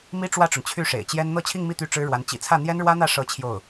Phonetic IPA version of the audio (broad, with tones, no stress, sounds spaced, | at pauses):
m i˥ ʈ͡ʂ w ä˥˩ ʈ͡ʂ ʊ˩ ŋ t͡ɕʰ y˥˩ ʂ ḛ˨˩ ɪ̯ t͡ɕ j ɛ˥ n n̪ ɤ˥˧ t͡ɕʰ i˥˧ ŋ m i˥˩ t̪ y˥ ʈ͡ʂ ɻ̩˥ ɻ w a˧˥ n t͡ɕ ḭ˨˩ t͡sʰ ä˥˩ n̪ j ɛ˥ n ɻ w ä˥ n̪ ä˥˩ ʂ ɤ˥ t͡ɕʰ j o˥˩ ʊ̯